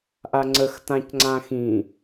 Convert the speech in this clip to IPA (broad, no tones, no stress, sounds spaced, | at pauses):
ʔ a ŋ͡ǀ ə x t ã c ŋ͡ǀ ã x ĩ